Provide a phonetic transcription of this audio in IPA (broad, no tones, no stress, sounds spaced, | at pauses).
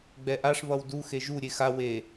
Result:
ɡ͡b ɛ ʔ a ʂ β ʌ w d u x e ʒ u ɾʲ e x a w e